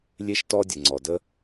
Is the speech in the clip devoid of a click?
no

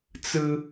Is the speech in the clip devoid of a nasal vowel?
yes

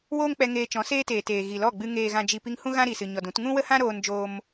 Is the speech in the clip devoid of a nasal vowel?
no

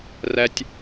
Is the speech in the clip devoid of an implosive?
yes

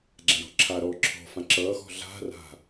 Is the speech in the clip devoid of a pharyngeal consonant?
yes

